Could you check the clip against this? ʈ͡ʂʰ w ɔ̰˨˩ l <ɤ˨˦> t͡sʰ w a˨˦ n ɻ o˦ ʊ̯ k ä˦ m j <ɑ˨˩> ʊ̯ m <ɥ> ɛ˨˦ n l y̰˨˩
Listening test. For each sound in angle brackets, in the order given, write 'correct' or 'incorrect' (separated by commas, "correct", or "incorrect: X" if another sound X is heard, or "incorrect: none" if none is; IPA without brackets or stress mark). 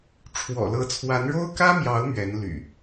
correct, incorrect: ɑ˨˦, correct